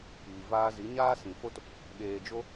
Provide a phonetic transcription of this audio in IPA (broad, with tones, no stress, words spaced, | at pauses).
piː˨vaː˧zi˨˦ ɲaː˦sĩ˨fo˦t | ɓeː˨d͡ʒo˧